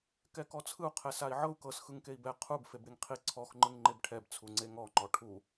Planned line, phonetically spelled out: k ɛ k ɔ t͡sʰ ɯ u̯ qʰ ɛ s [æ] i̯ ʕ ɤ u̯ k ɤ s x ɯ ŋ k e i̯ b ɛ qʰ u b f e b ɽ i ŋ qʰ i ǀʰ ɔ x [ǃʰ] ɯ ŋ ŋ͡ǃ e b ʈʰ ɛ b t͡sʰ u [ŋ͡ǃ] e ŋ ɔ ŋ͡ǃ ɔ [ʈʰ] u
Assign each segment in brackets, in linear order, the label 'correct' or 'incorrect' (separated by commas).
incorrect, incorrect, incorrect, correct